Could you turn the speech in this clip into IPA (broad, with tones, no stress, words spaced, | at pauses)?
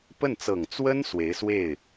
pə˥˩nt͡sɤ˨˩ŋ t͡swə˥n swe˧˥ɪ̯swe˥˩ɪ̯